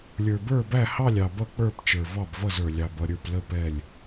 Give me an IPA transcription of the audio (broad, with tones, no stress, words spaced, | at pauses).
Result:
lʲə˞˨bə˞˦˨bæ˦˨hɑ˦˨lʲ ɑ˨bʌ˦˨k͡pə˞˦˨p t͡ʃə˞˨vɑ˦˨bvʌ˦˨zə˞˨ lʲɑ˨bʌ˦˨ɾʲə˞˦˨p lə˦˨ pɛ˦˨lʲ